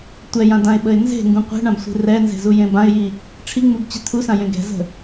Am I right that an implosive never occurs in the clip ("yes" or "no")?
no